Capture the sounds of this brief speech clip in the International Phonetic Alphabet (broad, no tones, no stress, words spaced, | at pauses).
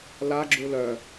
la ɡ͡ǁulœ